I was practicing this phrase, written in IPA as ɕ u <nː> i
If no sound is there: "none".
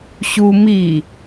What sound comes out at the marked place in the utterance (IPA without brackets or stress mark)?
m